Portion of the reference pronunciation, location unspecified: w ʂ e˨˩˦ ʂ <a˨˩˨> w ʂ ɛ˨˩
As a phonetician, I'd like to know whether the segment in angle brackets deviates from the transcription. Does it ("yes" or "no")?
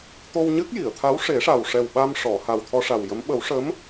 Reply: yes